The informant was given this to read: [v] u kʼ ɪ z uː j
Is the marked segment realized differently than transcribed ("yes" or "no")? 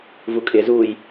no